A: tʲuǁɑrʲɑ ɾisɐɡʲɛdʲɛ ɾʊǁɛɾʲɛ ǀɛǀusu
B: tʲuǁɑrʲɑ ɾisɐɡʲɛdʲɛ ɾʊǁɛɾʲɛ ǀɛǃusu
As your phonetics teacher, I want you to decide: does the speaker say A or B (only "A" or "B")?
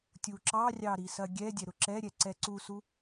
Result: A